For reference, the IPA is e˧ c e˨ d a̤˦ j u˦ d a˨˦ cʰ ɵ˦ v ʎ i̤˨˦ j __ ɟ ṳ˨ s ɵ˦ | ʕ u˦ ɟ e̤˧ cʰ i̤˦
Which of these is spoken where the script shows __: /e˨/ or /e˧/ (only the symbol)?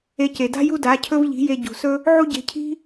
e˧